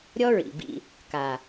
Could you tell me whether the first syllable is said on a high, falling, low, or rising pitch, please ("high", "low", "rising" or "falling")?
high